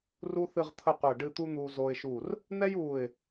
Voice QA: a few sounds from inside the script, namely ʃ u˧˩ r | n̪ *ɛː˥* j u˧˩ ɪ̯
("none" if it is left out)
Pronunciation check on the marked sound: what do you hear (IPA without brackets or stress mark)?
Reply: ɛ˥